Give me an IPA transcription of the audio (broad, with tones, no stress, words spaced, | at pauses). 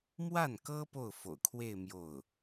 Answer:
mwa˥˩nkɤ˥ po˥˩ʊ̯fo̰˨˩ʊ̯kʰwe˥˧ɪ̯ mjo˥˩ʊ̯